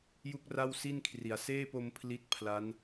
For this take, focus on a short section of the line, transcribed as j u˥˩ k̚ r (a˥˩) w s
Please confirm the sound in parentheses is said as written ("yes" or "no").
yes